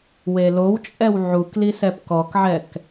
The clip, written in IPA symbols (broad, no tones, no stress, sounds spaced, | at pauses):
w e l o w t͡ʃʼ ɛ w ʕ u k l i s ɛ p k ɔ k ʕ ɛ k